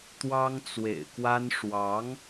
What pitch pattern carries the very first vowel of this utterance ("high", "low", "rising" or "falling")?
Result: high